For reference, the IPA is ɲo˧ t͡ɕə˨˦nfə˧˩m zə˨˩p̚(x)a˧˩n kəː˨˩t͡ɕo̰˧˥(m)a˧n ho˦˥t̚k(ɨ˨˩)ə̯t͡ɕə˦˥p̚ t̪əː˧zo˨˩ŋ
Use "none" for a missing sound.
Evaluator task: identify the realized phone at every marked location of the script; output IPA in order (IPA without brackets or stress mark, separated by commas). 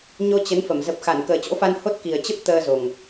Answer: x, f, i˨˩